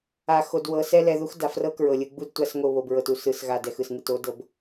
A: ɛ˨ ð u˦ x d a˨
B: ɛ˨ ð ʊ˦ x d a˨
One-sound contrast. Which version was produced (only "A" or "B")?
A